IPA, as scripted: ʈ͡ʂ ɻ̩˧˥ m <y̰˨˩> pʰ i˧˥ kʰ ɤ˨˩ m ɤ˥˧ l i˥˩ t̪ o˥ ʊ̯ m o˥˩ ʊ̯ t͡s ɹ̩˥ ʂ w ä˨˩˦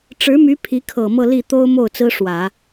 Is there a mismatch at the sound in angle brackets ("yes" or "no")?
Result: yes